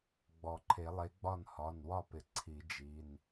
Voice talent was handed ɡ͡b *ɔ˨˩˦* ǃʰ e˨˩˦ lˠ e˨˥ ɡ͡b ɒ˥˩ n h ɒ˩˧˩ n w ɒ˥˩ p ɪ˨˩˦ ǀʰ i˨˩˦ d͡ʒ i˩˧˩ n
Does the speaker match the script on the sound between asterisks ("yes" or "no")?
yes